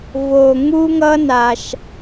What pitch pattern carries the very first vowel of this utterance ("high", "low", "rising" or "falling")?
low